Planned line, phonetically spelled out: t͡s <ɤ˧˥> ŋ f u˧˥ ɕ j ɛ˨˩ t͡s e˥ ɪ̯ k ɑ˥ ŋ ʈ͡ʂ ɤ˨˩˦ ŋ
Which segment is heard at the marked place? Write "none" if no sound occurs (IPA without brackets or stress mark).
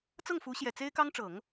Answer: ɤ˥˩